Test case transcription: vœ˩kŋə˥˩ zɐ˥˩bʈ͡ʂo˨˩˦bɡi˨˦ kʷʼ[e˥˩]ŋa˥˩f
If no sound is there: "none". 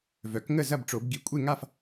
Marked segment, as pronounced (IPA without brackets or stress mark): e˥˩